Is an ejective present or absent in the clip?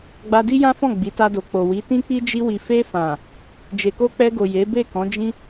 absent